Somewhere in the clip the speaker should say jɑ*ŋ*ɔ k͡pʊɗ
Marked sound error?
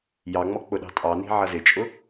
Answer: yes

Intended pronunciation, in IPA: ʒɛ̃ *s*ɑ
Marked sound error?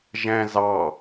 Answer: yes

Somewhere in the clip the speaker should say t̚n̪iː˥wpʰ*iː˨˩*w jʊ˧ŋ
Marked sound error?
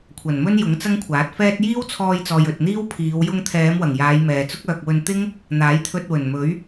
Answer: yes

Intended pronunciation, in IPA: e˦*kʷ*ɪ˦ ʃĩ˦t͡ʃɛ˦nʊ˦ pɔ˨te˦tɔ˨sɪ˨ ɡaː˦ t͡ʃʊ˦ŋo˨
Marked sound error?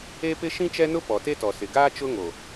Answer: yes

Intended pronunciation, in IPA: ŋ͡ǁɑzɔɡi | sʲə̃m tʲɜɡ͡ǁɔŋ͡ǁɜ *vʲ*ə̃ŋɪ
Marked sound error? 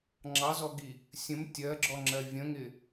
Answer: no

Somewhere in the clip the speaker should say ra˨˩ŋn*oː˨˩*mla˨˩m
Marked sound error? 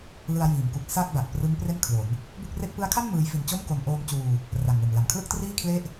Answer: yes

